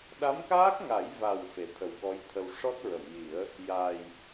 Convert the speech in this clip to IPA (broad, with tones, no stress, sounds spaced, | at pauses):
ɗ a˧˥ m k aː˦˥ k̚ ŋ a˨˩˦ j v a˨˩ w f e˨˩ t̪ʰ ə˨˩ w k ɔ˧˥ j t̪ʰ ə˧ w ʂ ɔ˦˥ t̚ ɹ ə˨˩˨ m j i˨˩˦ ə̯ | j a˨˩ j